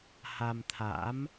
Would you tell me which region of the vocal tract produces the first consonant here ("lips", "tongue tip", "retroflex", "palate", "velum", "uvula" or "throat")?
throat